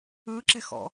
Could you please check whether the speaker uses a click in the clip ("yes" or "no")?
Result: yes